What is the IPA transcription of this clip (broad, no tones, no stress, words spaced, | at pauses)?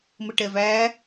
məʈɛvæ